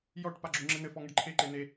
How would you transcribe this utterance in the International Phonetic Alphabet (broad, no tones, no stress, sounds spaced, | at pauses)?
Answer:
j ɔ ʈ p a ɡ͡ǁ u ŋ͡ǁ ɘ n ɘ f ɔ ŋ ɘ ɖ ǃʰ e ǃ e n e